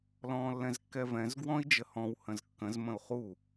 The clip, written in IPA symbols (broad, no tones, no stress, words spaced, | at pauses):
lɔ̃ːlːɛ̃zkːɛvɛ̃z ɡwɔ̃i̯d͡ʒəhɔ̃w hə̃zkːə̃z mə̃u̯χu